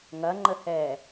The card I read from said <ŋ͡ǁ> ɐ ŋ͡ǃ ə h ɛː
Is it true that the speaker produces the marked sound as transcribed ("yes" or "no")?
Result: no